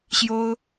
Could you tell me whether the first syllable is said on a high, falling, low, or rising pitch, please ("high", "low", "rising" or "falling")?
high